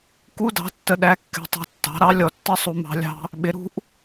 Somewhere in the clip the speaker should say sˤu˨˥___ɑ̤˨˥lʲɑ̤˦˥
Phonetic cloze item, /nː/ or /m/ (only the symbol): m